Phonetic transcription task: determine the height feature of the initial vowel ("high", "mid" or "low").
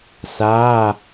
low